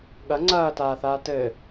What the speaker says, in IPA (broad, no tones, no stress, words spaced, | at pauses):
ɠɐ ŋ͡ǀɐːtaːθaː tɘː